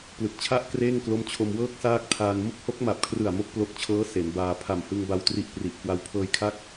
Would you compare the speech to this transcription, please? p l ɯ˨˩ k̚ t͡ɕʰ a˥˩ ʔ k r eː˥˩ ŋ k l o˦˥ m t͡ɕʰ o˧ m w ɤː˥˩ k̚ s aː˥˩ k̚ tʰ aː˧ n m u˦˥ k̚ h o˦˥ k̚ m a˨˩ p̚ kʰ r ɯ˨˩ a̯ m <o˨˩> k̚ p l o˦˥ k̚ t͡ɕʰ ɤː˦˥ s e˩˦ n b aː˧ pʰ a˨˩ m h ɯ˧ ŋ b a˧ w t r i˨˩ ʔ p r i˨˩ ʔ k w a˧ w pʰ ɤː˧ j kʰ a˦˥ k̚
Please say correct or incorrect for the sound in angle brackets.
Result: incorrect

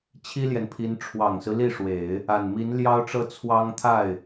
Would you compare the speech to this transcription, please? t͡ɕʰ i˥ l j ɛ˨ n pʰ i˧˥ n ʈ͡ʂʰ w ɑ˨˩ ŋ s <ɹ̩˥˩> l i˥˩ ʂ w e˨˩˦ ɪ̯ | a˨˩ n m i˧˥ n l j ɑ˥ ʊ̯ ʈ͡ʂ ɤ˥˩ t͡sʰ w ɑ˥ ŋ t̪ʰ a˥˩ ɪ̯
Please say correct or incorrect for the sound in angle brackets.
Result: incorrect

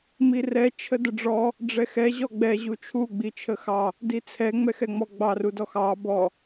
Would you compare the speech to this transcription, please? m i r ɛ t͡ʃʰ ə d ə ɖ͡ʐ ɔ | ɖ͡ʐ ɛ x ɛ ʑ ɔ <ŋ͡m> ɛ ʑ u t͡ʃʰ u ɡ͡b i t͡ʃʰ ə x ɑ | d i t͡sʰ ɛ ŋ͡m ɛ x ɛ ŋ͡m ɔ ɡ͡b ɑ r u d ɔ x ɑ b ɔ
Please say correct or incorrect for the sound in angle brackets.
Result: incorrect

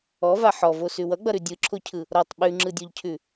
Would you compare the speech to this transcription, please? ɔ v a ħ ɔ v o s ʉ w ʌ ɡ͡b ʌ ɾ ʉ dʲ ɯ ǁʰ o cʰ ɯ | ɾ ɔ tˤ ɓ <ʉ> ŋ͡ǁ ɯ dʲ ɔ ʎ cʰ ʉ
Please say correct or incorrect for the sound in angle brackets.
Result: correct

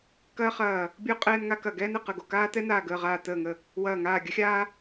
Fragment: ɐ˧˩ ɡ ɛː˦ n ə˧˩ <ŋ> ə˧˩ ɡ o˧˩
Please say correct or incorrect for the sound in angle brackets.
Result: incorrect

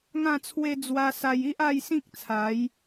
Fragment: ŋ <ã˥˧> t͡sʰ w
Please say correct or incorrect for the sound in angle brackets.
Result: correct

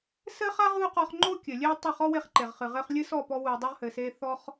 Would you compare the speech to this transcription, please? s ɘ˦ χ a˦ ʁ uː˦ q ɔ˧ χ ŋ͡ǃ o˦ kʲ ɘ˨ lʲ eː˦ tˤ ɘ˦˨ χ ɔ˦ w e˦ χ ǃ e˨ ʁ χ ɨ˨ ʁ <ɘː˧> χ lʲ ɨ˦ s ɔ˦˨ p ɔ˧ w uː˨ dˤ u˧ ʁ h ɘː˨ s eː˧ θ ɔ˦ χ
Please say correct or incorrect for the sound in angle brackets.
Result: correct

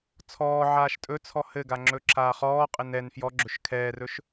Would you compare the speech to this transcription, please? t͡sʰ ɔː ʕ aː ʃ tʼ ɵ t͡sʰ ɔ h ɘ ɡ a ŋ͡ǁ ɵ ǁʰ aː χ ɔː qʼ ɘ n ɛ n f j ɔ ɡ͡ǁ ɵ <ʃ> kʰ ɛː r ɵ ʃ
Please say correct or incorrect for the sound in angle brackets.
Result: correct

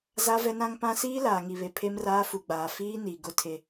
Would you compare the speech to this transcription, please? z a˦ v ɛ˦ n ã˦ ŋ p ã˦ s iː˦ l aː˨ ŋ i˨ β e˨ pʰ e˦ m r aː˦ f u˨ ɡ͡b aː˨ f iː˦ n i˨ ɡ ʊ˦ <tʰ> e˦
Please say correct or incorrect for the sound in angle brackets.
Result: correct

